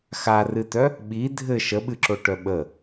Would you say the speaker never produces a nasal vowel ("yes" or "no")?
yes